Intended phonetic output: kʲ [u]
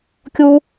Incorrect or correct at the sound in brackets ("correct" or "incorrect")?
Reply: correct